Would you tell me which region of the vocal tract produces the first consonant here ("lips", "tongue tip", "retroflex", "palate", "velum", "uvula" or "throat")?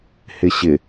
throat